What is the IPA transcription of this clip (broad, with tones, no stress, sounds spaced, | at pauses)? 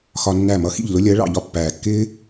x ɒ˧ nː æ˦˨ m ʌ˦ x ḭ˦˨ ʎ l ʊ˦ lʲ ɜ˨˦ ɭ ɑ̰˨ ʎ ɒ˧ pː æː˨ kː ɪː˦